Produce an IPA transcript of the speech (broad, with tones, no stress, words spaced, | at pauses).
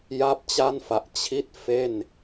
ja˥˩p̚t͡ɕa˥˩nfa˨˩ʔ t͡ɕʰi˥˩t̚ fe˥˩n